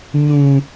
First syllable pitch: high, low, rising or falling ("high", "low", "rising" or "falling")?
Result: high